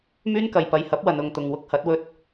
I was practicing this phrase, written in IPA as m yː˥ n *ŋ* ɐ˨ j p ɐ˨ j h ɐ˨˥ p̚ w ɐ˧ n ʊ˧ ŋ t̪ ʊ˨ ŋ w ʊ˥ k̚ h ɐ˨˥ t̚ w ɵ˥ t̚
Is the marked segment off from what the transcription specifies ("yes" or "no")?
yes